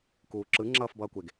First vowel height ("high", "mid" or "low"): high